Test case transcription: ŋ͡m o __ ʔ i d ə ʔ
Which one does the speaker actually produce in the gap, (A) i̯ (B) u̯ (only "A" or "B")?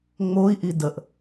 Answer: A